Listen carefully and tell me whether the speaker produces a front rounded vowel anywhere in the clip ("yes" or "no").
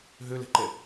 yes